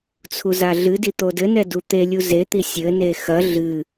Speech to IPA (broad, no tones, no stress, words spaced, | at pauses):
t͡sʰuzaɮɨdi t̪odɘnɛ dut̪elʲu zet̪i sʲɘne xɐ ɮɨ